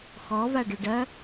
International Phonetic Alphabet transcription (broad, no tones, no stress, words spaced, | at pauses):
xɔvaɖøɖ ɐ